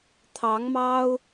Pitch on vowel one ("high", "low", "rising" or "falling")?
rising